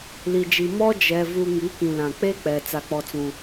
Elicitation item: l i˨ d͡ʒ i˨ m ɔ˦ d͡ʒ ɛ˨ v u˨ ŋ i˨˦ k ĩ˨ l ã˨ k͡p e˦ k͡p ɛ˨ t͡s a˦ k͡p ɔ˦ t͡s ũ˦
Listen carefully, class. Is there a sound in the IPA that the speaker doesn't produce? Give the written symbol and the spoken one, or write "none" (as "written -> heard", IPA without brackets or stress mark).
none